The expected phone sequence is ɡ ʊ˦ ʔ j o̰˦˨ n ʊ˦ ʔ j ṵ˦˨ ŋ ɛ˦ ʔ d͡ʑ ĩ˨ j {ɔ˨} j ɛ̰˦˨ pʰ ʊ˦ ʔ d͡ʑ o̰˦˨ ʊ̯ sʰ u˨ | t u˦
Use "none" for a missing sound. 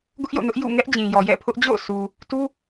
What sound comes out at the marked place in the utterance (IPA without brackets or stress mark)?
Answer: ɔ˨